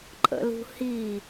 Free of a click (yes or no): no